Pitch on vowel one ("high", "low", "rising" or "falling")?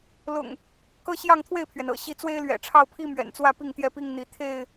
low